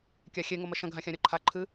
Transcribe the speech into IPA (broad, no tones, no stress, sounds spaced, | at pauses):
kʲ a xʲ e ŋ o m ɐ ʃ ɐ̃ ɡʱ ã xʲ ã ɾʲ ɔ ǃʰ a ǃʰ ɨ